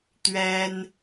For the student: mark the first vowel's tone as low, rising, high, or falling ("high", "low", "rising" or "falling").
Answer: high